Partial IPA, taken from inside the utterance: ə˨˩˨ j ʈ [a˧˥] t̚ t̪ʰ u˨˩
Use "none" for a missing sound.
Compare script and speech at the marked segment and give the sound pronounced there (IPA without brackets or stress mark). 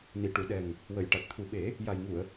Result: a˨˩